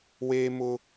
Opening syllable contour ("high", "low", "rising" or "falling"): high